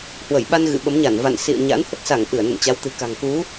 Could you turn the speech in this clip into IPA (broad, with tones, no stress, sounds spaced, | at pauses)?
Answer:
h w ə˧˩ j ɓ a˧ n ɣ ɨ̰˧˨ ɓ ə˨˦ m ɲ a˧˩ n v a̰˧˨ n s ḭ˧˨ ə̯ ɲ a̰˧˥ n h ə˦˥ t̚ s a˧˩ ŋ ʔ ɨ˧˩ ə̯ n ə̰˧˨ n t͡ɕ a˨˦ w t̪ ɨ̤˨˩ k a̤˨˩ ŋ k u˨˦